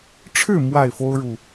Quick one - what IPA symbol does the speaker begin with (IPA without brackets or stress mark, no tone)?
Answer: ʈ͡ʂʰ